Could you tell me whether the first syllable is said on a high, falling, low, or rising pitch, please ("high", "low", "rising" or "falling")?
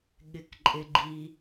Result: falling